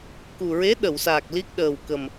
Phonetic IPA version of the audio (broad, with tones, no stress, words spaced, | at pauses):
ku˨˩ɹe˧˥ ɗə˨˩˨wsaː˨˩k̚ li˦˥k̚ ɗəː˨˩wkə˨˩m